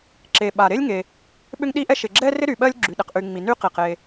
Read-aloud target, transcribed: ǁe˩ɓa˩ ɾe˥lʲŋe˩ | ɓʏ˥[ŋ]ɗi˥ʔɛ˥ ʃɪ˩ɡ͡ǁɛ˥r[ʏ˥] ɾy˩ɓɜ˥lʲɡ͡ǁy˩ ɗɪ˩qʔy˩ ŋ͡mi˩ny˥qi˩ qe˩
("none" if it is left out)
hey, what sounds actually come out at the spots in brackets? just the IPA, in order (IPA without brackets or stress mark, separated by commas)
ŋ, ɪ˥